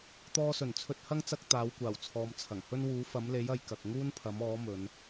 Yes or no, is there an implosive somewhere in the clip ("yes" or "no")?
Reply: no